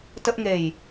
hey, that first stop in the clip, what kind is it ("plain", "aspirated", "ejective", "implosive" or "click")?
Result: plain